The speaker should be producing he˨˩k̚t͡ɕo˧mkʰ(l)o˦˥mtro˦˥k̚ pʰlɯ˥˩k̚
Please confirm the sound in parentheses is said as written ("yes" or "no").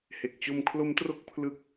yes